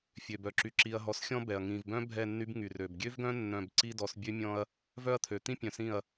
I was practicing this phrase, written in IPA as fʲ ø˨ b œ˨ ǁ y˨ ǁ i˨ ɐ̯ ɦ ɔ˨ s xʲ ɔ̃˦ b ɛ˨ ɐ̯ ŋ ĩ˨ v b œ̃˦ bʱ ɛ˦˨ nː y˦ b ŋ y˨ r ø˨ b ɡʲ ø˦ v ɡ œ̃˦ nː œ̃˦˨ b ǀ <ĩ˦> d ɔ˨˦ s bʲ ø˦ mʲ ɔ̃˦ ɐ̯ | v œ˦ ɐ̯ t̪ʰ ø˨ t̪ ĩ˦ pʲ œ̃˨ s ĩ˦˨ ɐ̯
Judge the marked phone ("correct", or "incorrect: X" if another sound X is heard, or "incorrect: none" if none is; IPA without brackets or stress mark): incorrect: i˦